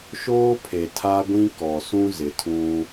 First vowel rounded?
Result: yes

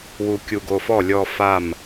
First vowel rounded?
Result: yes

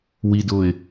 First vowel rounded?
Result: no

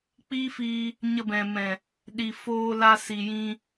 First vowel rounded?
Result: no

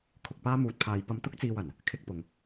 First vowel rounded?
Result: yes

